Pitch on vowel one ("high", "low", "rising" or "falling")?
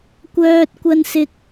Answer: high